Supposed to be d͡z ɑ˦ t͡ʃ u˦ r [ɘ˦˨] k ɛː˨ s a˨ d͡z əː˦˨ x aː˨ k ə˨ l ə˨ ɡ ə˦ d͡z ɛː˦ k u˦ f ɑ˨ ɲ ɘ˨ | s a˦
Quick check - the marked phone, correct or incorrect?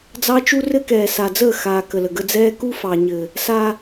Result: incorrect